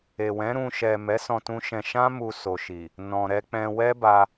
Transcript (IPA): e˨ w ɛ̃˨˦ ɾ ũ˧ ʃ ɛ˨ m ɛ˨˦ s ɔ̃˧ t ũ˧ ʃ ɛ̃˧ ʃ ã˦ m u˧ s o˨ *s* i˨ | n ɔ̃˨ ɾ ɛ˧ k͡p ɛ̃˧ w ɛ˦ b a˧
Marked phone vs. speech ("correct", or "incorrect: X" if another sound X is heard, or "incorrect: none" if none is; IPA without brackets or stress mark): incorrect: ʃ